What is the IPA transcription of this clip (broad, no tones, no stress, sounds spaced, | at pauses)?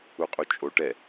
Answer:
u qʼ u t͡ʃʼ o ʈ ɛ